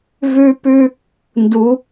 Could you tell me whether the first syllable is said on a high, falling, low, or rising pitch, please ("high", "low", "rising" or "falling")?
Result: high